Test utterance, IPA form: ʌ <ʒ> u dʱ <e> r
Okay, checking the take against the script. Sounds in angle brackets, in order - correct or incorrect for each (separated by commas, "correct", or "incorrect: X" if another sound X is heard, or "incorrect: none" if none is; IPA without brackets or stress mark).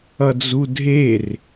incorrect: d͡z, correct